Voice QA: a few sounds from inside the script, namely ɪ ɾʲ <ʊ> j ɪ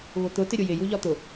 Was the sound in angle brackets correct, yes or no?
yes